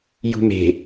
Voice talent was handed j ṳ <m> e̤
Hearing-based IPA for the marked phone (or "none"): m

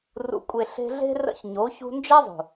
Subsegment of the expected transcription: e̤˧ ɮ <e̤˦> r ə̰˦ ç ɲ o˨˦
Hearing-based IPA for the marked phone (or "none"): e̤˦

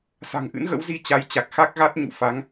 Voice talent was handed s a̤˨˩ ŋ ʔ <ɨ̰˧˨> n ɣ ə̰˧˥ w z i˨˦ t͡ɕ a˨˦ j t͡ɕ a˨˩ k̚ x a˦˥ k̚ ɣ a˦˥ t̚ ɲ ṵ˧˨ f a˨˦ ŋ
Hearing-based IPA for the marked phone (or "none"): ɨ̰˧˥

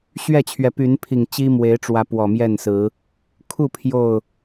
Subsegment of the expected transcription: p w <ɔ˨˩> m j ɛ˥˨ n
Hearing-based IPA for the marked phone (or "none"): ɔ˨˩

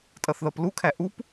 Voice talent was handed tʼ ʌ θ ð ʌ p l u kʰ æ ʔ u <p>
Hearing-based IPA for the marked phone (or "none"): p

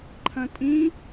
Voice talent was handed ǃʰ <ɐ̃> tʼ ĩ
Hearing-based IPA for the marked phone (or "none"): ɐ̃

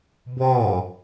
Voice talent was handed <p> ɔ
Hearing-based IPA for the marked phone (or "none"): b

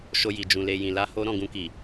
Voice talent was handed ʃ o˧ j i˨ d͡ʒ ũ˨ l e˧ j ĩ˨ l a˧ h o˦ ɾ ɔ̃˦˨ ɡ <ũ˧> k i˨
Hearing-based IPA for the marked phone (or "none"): ũ˧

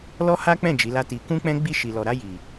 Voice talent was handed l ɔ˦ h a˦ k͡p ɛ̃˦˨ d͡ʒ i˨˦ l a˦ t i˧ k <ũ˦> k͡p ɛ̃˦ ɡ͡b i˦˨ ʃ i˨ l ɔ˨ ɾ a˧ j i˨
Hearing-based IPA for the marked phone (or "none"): ũ˦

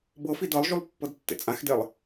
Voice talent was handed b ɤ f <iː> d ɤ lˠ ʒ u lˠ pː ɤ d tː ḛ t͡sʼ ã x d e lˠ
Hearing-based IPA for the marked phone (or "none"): i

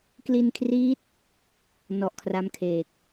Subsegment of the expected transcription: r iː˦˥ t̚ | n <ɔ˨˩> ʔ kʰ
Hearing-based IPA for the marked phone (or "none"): ɔ˨˩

